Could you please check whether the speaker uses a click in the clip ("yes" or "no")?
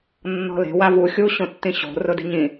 no